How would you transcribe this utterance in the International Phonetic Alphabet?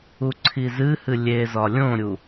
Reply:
u ǀʰ i z ɨ h ɨ lʲ e z ɒ lʲ õ ɾʲ u

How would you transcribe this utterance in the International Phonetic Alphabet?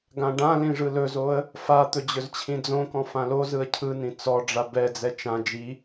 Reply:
ɡ ã ɖ ã l ĩ ʐ ɯ l ɵ z o ə̯ | f a t̪ ɵ d͡ʑ ɵ z t͡ɕʰ ĩ d͡z õ k ɔ̃ f ã l o z ɯ ə̯ cʰ ɯ n ĩ t͡s ɔ ɖ͡ʐ a b ɛ d͡z ɛ t͡ʃ ã d͡ʒ i

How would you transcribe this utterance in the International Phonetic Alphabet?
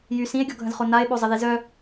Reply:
j y s ĩ e̯ ɡʲ ɔ ɡʱ ə̃ z χ o n a e̯ ɓ o zˤ ə ð i z œ

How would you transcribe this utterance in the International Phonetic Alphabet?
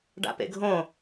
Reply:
ɖ a̰ p ḛ ɡʱ õ

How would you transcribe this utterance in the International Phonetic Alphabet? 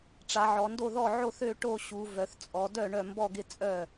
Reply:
ʈ͡ʂ a˩˧ ʕ ɔ˩˧ n d o˥˩ ð ɔ˥˩ ʕ o˥˩ θ ø˥˩ ʈ o˥˩ ɕ u˩˧ v œ˩˧ θ t͡sʼ ɔ˩˧ d œ˥˩ ɳ œ˥˩ m b ɔ˥˩ ɡ ɪ˥˩ t͡sʼ œ˥˩

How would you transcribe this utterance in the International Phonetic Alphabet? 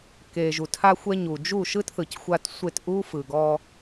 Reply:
k e˨ ʒ u˨ tʰ a˧ xʷ ɛ˧ ɲ u˨ d͡ʒ u˦˨ ʃ ɯ˦ t θ ɯ˨ c xʷ a˧ t sʷ e˦˨ t ʔ u˦ f ɯ˨ ɡ ɔ˧

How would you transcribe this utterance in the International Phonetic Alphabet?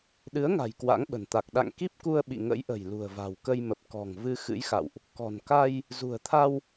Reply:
ɗ ɨ˨˦ ə̯ ŋ a̤˨˩ j k w a̰˧˥ ŋ ɓ ə̤˨˩ n t̪ a˨˩ k̚ ɗ a̰˧˨ ŋ k i˦˥ p̚ k u˧ ə̯ ɓ ḭ˧˨ ŋ ə̰˧˥ j ʔ ə̤˨˩ j l ṳ˨˩ ə̯ v a̤˨˩ w k ə˧ j m ə˨˩ p̚ k ɔ̤˨˩ ŋ v ɨ˧ x ɨ̰˧˥ j x a̰˧˨ w ʔ | k ɔ̤˨˩ n k a˧ j | z ṳ˨˩ ə̯ t̪ʰ a˧ w

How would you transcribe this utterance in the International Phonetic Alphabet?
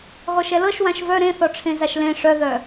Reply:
ɣ ɔ ʃ ɛ l ɤ ʃ w ã ʃ v œ ɾ ẽ θ ɔ ʈ͡ʂʰ ẽ z a ʃ l ẽ ʂ œ ð œ

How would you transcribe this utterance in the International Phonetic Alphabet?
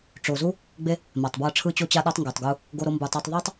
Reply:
ʈ͡ʂ o˨ z u˦ | ɡ͡b e˦ | m a˨ tˤ b w ɤ˧ ʈ͡ʂʰ ɯ˧ t͡ɕ o˧ t͡ɕ a˧ ɗ ɔ˧ tˤ ŋ ɡ u˨ tˤ ɡ u˧ | ɡ o˧ ɾ o˧ m b u˨ tˤ ɤ˧ tˤ ðˤ a˦ tˤ

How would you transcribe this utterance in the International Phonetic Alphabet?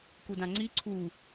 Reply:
k u d ã ŋ͡ǀ i ǀʰ u

